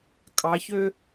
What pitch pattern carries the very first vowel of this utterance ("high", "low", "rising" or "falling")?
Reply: rising